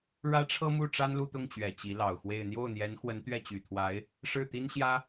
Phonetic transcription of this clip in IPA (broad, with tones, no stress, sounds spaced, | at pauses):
ɻ ä˥ ʈ͡ʂʰ ɤ˥ m u˥˩ ʈ͡ʂ a˥ n l u˥˧ t̪ ʊ˥˩ ŋ t͡ɕ ɥ ɛ˨˩ t͡ɕ i˧˥ l ɑ˨˩ ʊ̯ x w e˥˧ ɪ̯ n̪ j o˥˩ ʊ̯ n̪ j ɛ˧˥ n x w ə˧˥ n t̪ ɥ ɛ˥˩ t͡ɕ y˨˩ t̪ʰ w a˧˥ ɪ̯ | ʂ ɻ̩˥˩ t̪ i˥ n ɕ j ä˥